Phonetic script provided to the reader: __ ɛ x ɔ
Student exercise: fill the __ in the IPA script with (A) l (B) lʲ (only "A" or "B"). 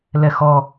A